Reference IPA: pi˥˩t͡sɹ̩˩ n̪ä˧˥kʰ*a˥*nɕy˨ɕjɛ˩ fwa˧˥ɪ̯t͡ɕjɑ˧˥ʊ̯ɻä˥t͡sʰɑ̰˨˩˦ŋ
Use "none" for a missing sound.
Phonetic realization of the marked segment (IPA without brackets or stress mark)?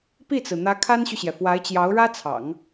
a˥